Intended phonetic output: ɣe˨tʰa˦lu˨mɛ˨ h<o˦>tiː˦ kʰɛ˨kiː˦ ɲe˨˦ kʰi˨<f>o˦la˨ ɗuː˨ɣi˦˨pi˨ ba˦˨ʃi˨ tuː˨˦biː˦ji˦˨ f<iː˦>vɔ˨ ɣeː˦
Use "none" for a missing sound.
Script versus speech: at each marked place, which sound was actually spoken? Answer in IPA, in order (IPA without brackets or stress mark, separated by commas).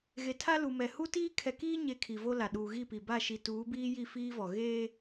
u˦, v, iː˦